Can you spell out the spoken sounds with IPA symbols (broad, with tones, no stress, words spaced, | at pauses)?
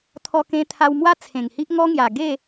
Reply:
t̪ʰɔ˧kẽ˧t̪ʰa˧wmwa˦ t͡sʰẽ˨˩ŋhi˦ʔ ŋɔ˦ŋja˨˩ ɡe˥˧